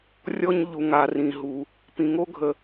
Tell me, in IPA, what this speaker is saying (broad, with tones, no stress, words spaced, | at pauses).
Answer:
rʲɔ˦ɲ ʎu˨ŋa˨rĩ˨ɦu˨ | pĩ˨ŋo˦ɡʱə˨